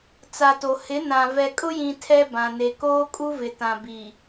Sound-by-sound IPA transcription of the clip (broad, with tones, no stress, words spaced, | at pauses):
t͡sa˨to˨ hɪ˨˦nã˨ vɛ˨kʼʊ˦jĩ˨ tʰɛ˦bã˨ne˨ koː˦kʼu˦vɪ˨ tã˨bi˨